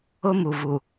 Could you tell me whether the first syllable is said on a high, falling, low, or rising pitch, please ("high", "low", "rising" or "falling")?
high